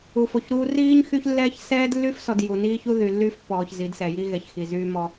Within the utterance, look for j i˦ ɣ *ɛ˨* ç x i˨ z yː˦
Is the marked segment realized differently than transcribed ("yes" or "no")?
no